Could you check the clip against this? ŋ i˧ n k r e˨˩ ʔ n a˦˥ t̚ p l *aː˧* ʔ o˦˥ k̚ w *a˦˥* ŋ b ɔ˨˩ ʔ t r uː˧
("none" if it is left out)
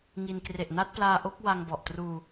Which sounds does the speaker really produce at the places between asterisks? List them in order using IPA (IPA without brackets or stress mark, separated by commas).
aː˧, a˧